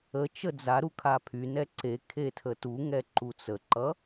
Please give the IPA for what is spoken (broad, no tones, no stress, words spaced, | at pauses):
ət͡ʃə d͡zaɾu kʰapʰynɛ ǀe kʰetʰətuŋɛ ǃut͡səǃʌ